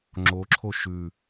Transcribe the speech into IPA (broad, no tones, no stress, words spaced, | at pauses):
ŋ͡ǁoǁʰo ʃʉ